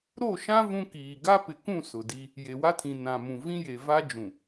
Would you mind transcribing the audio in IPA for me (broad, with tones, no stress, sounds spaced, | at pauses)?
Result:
ɾ o˦˨ ʃ ã˦ v ũ˦ k iː˨ ɡ a˦ p ɪ˨ k ũ˦˨ s ʊ˨ d i˦ | j e˨ w a˦ tʰ ĩ˨ n ã˨ m ũ˨ v ĩ˦ j e˨ v a˦ d͡ʒ ũ˨